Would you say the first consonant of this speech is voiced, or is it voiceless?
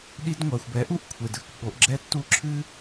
voiced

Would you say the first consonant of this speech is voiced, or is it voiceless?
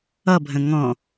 voiced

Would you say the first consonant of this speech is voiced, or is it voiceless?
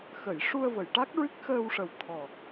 voiceless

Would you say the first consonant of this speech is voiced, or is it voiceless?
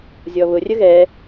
voiced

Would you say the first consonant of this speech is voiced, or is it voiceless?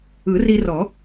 voiced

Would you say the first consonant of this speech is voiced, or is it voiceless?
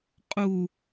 voiceless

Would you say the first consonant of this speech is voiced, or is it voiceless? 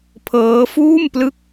voiceless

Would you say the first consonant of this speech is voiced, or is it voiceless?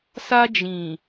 voiceless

